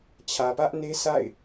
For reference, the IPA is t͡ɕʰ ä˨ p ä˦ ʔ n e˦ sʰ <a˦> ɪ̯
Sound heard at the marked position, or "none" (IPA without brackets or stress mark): a̰˦˨